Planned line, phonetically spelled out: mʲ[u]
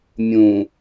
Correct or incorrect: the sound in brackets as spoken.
incorrect: ũ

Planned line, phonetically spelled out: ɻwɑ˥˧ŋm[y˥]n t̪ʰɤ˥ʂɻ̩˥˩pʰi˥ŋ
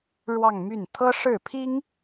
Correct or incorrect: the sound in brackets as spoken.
incorrect: y˥˩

